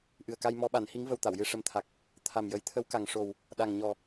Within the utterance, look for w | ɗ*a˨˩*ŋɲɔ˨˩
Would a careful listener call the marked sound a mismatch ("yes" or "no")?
no